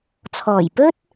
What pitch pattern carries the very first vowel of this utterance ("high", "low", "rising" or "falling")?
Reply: low